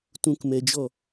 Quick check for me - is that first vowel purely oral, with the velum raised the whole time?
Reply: no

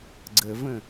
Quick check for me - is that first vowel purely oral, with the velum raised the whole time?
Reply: yes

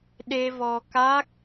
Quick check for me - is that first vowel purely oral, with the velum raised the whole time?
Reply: yes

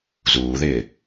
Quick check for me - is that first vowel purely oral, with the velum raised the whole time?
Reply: yes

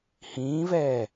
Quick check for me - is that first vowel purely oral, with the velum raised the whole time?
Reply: no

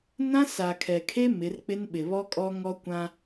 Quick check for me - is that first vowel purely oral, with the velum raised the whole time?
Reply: no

